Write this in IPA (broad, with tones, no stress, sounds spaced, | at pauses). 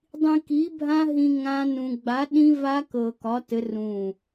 dˤ ĩ˧ k i˨˥ bʱ ã˦˥ ɦ ĩ˧ ŋ ã˦˥ n ũ˧ ɡ͡b a˨˥ ɗ ĩ˦˥ v a˦˥ k ɤ˧ k ɒ˨˥ t ɘ˨˥ r ũ˧˩